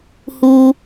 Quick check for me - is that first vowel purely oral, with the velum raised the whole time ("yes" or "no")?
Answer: yes